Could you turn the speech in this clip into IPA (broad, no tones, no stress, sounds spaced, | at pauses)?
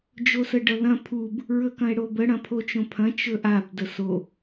d͡ʒ o s ə ɖ ʌ ð ɐ̃ pʰ u b | ɹ ɵ k ɐ̃ e̯ ɽ o b ə ɽ ɐ̃ pʰ o t͡ʃ õ pʰ ɐ̃ t͡ʃ ɵ ʔ a b d ə s o